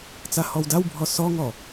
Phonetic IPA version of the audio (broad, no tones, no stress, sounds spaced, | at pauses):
t͡s a h ɔ w d a w bʱ ɔ s ɔ ŋ ɔ